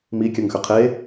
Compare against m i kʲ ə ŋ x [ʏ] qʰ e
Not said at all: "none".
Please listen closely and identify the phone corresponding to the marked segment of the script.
ʏ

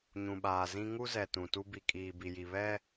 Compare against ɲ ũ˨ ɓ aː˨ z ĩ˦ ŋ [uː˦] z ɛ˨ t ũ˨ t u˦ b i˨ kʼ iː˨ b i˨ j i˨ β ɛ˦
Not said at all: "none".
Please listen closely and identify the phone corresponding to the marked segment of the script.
u˦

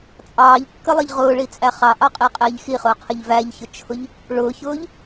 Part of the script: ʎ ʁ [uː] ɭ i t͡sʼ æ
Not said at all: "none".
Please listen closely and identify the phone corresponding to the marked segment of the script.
ʊː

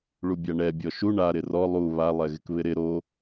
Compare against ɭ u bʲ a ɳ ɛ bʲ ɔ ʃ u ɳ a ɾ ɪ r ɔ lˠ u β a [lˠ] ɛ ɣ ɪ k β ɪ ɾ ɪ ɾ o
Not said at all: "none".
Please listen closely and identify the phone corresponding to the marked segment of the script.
lˠ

